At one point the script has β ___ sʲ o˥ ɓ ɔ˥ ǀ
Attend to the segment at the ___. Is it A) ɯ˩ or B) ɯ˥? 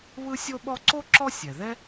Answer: B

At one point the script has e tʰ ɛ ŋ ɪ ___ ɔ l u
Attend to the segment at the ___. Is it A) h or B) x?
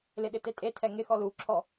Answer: B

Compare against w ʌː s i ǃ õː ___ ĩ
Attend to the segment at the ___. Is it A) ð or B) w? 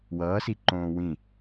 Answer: B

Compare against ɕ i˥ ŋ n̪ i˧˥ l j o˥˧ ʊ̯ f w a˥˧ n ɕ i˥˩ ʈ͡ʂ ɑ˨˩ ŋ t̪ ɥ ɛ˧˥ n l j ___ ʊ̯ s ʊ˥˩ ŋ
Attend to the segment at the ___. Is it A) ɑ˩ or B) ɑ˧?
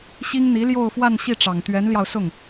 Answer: B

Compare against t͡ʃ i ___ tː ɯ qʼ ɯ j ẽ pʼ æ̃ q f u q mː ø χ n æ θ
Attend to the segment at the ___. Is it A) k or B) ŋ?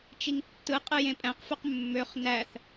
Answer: B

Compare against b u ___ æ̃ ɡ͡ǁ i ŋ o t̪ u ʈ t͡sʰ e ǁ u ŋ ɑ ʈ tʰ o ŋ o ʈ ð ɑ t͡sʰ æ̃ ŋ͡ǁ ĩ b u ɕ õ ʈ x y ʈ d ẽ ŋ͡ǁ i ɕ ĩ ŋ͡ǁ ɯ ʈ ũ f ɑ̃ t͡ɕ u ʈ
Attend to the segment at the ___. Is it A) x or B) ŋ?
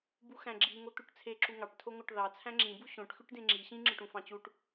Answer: A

